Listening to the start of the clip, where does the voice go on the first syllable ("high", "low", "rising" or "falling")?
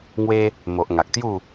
high